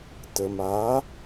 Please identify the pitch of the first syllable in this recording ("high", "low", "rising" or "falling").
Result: low